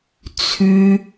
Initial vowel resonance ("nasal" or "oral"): oral